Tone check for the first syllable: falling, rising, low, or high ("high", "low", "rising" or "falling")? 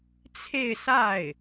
falling